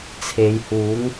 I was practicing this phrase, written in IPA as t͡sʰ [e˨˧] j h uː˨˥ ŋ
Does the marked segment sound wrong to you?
no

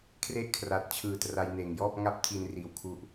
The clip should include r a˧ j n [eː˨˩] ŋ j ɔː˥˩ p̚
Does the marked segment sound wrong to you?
no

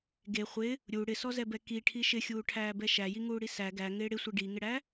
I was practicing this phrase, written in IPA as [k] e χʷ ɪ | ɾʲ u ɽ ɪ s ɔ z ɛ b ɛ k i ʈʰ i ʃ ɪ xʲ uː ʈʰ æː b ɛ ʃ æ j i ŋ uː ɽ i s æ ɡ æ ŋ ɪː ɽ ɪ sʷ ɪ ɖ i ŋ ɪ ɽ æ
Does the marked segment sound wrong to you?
yes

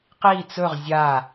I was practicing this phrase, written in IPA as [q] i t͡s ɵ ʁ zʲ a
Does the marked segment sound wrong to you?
no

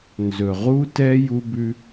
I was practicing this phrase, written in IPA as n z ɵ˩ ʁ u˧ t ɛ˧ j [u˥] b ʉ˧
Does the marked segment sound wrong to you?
yes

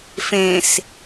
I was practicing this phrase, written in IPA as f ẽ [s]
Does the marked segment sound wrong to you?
no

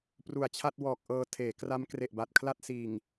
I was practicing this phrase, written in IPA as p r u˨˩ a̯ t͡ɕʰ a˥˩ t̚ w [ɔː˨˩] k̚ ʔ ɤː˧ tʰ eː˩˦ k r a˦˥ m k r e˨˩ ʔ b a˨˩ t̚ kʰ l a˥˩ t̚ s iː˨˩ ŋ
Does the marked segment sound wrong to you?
no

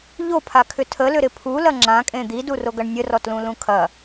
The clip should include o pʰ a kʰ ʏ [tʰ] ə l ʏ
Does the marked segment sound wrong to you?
no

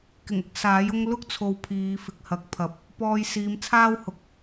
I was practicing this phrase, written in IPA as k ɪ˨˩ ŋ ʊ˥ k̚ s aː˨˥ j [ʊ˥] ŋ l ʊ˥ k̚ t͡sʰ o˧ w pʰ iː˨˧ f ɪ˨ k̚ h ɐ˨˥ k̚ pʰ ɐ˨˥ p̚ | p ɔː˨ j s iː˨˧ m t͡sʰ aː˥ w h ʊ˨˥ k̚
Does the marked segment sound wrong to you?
no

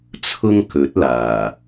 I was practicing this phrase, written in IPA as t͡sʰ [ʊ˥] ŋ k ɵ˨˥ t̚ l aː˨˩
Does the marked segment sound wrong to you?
no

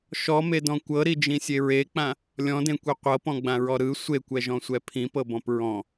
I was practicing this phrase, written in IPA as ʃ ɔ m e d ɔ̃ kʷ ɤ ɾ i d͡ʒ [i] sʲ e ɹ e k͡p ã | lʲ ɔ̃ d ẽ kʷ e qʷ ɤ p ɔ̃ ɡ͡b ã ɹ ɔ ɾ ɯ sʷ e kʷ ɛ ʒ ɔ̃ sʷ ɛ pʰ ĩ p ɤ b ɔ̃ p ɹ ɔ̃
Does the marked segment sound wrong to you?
yes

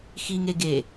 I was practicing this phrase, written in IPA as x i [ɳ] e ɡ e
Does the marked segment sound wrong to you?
yes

